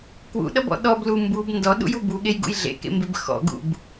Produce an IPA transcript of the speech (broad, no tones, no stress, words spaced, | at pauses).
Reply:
kwṵɗʌbɔ̰ ɗɔblu mbub ndɔɗṵju buɠejɡṵj ɮḛkḛmbeb xɔ̰ɡṵb